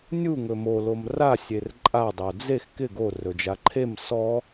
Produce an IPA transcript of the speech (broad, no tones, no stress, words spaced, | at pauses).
nʲuŋɵ mo lomra sʲerǃʼa dˤod͡zex kɪ ɡorɵd͡ʒa ǃʰem sɔ